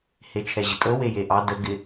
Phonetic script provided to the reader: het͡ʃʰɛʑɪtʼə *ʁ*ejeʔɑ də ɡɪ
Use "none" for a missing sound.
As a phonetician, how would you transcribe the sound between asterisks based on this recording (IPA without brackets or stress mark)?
w